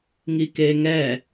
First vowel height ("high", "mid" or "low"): high